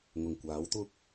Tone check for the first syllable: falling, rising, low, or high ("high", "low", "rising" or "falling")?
low